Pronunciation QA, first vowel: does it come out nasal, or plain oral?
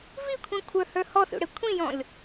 oral